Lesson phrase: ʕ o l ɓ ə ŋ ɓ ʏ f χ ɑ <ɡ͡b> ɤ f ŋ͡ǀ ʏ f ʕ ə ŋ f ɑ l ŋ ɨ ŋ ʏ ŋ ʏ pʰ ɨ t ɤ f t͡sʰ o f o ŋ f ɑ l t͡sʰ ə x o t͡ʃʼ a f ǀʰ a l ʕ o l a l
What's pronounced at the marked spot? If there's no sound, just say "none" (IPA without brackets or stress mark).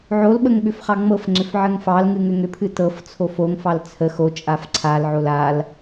ŋ͡m